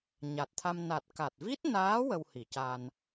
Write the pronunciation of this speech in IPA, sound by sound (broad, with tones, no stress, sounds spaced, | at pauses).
ɲ a˨˩ t̚ t̪ʰ a˧ m n a˨˩ t̚ k a˨˩ t̚ v i˦˥ t̚ n aː˧˥ w ə˧ w h i˨˩˨ c a˧ n